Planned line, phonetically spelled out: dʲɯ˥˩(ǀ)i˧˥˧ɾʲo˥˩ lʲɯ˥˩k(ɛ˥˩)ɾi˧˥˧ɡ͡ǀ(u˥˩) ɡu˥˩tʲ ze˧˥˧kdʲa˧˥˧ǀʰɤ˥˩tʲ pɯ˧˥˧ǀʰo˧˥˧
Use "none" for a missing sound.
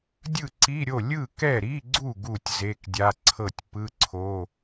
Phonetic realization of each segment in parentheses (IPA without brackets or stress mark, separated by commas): ǀ, ɛ˥˩, u˥˩